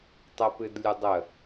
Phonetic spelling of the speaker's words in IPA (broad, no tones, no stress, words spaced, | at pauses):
tˤəpɨdlʲɨ dˤə